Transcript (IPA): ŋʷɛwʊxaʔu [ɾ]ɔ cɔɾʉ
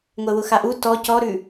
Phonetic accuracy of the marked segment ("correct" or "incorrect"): incorrect